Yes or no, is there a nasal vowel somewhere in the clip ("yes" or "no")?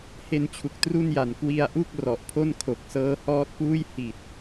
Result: no